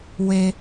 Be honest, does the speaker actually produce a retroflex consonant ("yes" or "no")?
no